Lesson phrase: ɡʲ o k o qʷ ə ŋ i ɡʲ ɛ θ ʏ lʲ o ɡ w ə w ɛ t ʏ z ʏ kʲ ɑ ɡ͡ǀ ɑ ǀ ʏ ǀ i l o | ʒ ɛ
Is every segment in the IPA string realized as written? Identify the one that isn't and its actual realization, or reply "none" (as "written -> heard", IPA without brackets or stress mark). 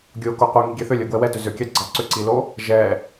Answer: none